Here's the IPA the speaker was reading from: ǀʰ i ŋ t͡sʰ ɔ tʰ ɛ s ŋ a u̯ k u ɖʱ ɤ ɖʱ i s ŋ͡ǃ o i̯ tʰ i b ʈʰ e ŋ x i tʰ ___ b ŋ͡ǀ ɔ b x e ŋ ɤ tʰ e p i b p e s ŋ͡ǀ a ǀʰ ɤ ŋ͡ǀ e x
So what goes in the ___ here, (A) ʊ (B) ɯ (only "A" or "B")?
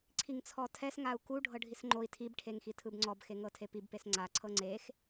B